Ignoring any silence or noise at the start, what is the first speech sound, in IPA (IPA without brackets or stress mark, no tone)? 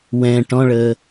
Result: w